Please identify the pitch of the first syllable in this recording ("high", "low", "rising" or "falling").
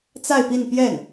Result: falling